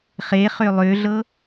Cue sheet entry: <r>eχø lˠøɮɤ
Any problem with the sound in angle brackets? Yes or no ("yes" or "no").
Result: yes